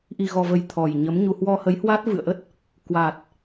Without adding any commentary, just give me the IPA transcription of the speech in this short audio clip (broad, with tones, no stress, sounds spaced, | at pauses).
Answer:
ʔ i˨˩ ɣ ɔ˨˩ v ə˨˩ j t̪ʰ ɔ˨˩ j ɲ ə˨˦ m ɲ u˧ h w ɔ˧ h ə˨˦ j h w a˦˥ t̚ v ɨ̰˧˨ ə̯ ʔ ə˦˥ t̚ | k w a˨˩ t̚